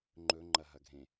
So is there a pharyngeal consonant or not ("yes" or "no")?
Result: no